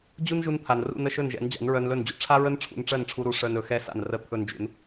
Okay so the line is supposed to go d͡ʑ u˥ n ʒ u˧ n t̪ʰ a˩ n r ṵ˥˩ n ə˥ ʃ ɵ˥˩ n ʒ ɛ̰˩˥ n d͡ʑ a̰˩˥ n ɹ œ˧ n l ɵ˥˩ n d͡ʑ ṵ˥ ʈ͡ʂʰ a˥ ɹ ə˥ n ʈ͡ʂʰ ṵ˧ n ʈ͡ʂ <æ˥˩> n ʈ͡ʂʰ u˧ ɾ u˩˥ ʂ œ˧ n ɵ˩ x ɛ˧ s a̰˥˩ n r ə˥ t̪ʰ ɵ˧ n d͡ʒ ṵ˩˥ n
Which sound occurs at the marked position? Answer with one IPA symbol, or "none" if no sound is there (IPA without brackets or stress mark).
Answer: ɜ˥˩